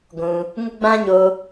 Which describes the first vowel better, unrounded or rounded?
rounded